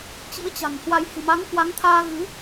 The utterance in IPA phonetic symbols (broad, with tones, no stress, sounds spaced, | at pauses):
t͡ɕ ḭ˧˥ ə̯ t͡ɕ a̤˨˩ ŋ h w a˧ j h ɨ̤˨˩ m a˨˦ ŋ k w a˨˦ ŋ t̪ʰ aː˧ ɣ ɨ˨˦